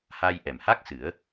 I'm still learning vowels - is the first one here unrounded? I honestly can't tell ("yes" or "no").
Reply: yes